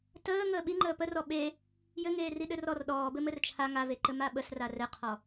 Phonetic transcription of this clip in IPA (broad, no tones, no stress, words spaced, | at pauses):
təː ŋəːɓiŋ͡ǃəː pərɔ ɓe | jɘŋeːri ɗɘrɔr ɗɔːbɘ mɘrt͡ʃʰa ŋaveǃɘ maɓəs rarɘqʰɔ